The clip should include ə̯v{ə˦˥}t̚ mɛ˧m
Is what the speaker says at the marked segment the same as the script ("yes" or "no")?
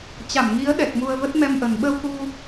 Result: yes